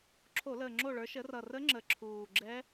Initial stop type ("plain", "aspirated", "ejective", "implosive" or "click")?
click